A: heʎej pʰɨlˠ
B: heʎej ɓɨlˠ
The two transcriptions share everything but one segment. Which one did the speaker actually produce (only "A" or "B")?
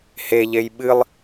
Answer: B